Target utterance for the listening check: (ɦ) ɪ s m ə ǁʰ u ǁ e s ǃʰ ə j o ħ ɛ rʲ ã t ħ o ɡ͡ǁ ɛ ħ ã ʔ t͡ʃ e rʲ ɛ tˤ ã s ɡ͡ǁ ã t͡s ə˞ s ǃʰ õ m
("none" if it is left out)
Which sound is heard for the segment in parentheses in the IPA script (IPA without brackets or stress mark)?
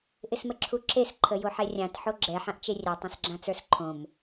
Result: ʔ